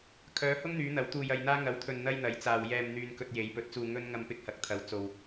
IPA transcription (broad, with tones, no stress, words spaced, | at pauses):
kʰœː˨˧hʊ˥ŋn̪yː˨˧ n̪ɐ˨˥w t̪uː˧jɐ˧jn̪aː˥ ŋɐ˨˥wt̪ʰɵ˨nn̪ɐ˧j n̪ɐ˨˥jt͡saː˨wjɛː˧m n̪yː˧nkɵ˧t̚ je˨˧jpɵ˨˥t̚t͡suː˧ ŋɵ˥n ŋɐ˧mpɪ˧k̚hɐ˨˥k̚t̪ʰɐ˨˧w t͡so˨w